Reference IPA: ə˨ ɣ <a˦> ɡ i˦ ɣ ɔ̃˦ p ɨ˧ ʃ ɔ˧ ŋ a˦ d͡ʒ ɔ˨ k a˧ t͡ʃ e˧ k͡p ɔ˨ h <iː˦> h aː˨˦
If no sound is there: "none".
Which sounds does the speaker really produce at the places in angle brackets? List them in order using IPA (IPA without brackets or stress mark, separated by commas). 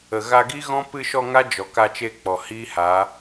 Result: a˧, iː˦